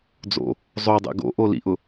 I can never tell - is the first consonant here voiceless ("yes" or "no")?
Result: no